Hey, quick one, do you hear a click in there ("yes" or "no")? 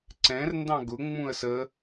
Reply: yes